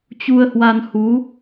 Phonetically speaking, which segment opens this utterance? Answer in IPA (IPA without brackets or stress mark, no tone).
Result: t͡ɕ